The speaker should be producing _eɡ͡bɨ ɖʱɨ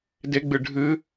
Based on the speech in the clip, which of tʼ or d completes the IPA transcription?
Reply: d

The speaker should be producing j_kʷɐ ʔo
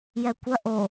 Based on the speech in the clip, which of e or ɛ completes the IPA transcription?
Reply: ɛ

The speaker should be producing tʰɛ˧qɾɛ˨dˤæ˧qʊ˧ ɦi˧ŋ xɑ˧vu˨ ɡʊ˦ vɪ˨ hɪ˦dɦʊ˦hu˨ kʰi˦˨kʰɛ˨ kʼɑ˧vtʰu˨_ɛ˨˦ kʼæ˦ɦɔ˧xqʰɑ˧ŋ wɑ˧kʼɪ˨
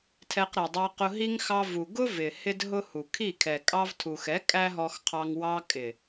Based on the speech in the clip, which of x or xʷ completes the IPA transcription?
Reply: x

